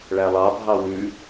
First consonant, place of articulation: retroflex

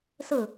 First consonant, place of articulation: alveolar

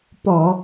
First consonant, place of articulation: labial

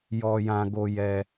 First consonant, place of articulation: palatal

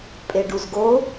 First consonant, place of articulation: labial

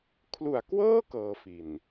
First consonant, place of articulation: velar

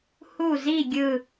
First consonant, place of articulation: glottal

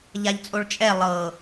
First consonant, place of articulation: palatal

